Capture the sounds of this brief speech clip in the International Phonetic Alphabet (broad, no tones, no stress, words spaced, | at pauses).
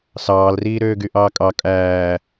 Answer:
sɑːlriːɾøː ɡyʔɑːkʼɑ kʼæː